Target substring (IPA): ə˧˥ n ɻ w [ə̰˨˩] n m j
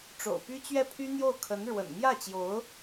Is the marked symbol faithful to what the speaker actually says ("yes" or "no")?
yes